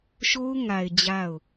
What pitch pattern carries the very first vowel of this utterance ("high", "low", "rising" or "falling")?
high